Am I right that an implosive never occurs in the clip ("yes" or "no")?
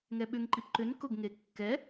no